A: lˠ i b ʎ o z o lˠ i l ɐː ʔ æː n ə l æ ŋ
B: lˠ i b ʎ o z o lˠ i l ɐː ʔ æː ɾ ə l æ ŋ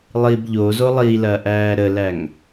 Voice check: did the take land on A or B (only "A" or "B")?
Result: B